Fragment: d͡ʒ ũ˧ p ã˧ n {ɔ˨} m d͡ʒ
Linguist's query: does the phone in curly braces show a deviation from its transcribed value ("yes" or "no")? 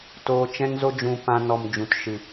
no